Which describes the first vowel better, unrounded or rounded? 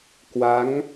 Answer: unrounded